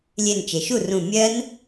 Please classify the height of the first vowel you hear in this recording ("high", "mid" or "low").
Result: mid